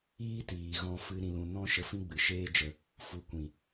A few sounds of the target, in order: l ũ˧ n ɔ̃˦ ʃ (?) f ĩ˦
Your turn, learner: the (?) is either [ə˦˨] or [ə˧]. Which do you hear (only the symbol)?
ə˧